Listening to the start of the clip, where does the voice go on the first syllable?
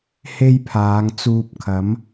high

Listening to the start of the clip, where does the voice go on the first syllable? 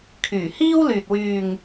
low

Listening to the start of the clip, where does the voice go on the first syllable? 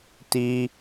high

